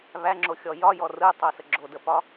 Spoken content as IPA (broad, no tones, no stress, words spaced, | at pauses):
βæŋ͡ǁoxʲɔ jɒjɔ rɯtˤosə ɡ͡ǁodəpɒ